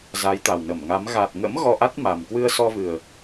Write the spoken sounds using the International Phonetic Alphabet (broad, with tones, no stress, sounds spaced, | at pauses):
z a˨˦ j t̪ a˨˩ w n ə˧˩ m ŋ a˨˦ m ɣ a˨˩ t̚ ŋ ə̰˧˥ m ɣ ɔ˧ ʔ a˦˥ t̚ m a˨˩ m k w ɨ˧ ə̯ s ɔ˧ v ɨ˨˩ ə̯